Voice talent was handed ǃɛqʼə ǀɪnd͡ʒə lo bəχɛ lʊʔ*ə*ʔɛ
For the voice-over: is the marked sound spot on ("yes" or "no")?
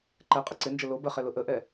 yes